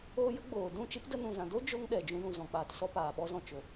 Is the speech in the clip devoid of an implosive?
no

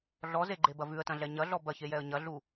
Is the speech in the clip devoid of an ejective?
yes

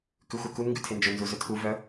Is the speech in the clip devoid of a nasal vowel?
yes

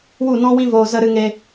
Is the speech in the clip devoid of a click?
yes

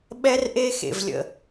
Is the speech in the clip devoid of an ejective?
yes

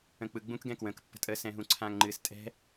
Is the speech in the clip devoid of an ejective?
no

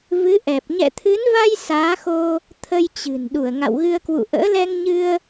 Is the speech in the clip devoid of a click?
yes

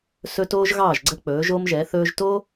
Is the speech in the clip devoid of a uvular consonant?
yes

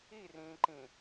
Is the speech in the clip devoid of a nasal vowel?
no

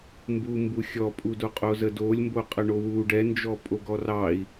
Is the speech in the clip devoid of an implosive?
yes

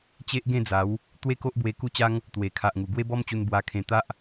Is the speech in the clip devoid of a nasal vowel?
no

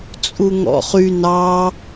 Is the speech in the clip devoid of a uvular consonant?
no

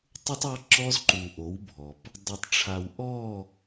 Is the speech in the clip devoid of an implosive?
yes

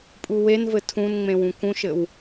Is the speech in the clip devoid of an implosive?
yes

